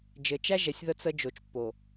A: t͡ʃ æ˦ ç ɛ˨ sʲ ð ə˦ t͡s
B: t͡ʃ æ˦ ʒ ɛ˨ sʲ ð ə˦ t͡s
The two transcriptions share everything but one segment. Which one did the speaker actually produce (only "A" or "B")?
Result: B